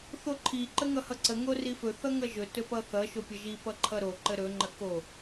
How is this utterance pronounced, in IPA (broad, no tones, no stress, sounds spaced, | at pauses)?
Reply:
θ o ǃʰ i ǃ ə ŋ ʌ h ʌ ǀ ə ŋ o r i f ɵ θ ʌ ŋ ʌ ʒ ɵ t ɵ p ʌ θ ʌ ʃ o pʲ ʌ ʒ i p ʌ ǃʰ ʌ ɾ o ǃ ə ɾ ɵ ŋ͡ǃ ə k o